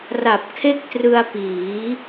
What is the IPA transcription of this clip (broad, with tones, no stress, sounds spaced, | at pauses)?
r a˨˩ p̚ kʰ e˥˩ k̚ t r ɯ˧ a̯ p iː˩˦